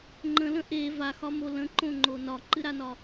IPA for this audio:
ŋ͡ǃ ə̃ l ə̃ ʔ e v a x ɒ m o l ə̃ ǃ õ ŋ͡ǃ o n ɒ ǃ ɨ ɾ a n ɒ

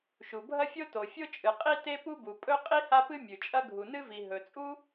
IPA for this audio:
ʃ u˩ bʱ ɐ˥ fʲ o˥ t o˩ fʲ o˥ t͡ʃʼ ɨ˩ qʼ i˥ t e˥ p u˥ b u˩ pʼ ɵ˥ qʼ i˥ h a˥ p ɨ˥ mʲ ʉ˩ t͡ʃʼ ɐ˥ ɡʱ u˩ n ɨ˥ v i˩ ɦ ɵ˩ t͡sʼ u˥

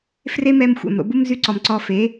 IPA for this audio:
f r e˦ m ɛ˧ m xʷ ɛ̰˨ m ɾ o̰˧ b u˦ m z y˧ ǀ ɔ˨ m ǀ ɔ˧ f e˨˦

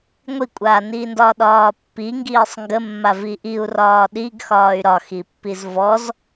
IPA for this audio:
ŋʷ i kʷʼ aː n iː n d ɒː ɗ ɒː pː i ŋ ɡ iː sˤ ŋ ɡ ə mː a v i ʔ i u̯ r ɒː ɗ i ɡ x ɒː y̯ ɾ ɒ x i pː i z v ɔ z

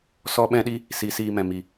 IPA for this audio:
s ɔ˦ ɓ ɛ̃˦ ɗ i˦ | s i˨˦ s iː˧ m ɛ̃˨ m i˨

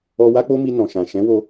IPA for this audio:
ɔ˧ w a˦ k͡p o˦ m i˧ n ɔ̃˨ ʃ ã˨ ʃ ɛ̃˨˦ w o˧

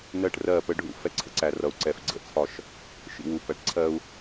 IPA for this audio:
n ɜ˦˨ ʈ r ɜ˦˨ p ə˦ ɖʱ ṵ˦ f ɛ˦ ǀʰ ə̰˦ ǀ æ˨ r ʌ˨ u̯ ǀ ɛ˨ f ɡ͡ǀ ə̰˦ t͡sʰ ɒ˦ ʃ | ʃ ḭ˨ w u˨ p æ˨ ʈ ǀʰ ɜ˦ u̯

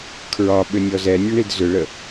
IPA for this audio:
kʰ ɹ ɒ ɓ ʏ nʲ ɔ z ɛ nʲ ʊ ɳ i d z ʏ ɭ ə

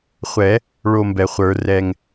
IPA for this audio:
χʷ ɛ˨˩˦ | ɭ o˥˨ m b ɛ˨˩ χʷ ə˞˨˩˦ r ɛ˨˩ ŋ

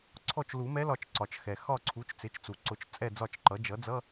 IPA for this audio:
ǀʰ ɔ˦˨ t͡ʃ l u˨˩˦ m ɛ˧˥ l ɒ˨˩˦ t͡ʃ ǀ ɒ˩ t͡ʃ x ɛ˩ x ɒ˦˨ ǀʰ u˩˥ t͡ʃ t͡s ɪ˩˥ t͡ʃ t͡s u˩ ǀ ʊ˨˩˦ t͡ʃ t͡sʼ ɛ˦˨ d͡z ɒ˦˨ t͡ʃ ǃ ʌ˩˥ d͡ʒ ʌ˩˥ d͡z ʌ˧˥˧

